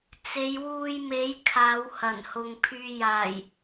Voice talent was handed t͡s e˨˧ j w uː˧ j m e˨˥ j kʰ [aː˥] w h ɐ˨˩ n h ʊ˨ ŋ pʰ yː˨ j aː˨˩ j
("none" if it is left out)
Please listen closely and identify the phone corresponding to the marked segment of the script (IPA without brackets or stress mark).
aː˨˧